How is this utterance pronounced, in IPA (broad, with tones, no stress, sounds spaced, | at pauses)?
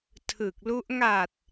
tʰ ɯ˨˩ k̚ l u˦˥ ʔ ŋ a˨˩ t̚